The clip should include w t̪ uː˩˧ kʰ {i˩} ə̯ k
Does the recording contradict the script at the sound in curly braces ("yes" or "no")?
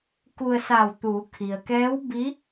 no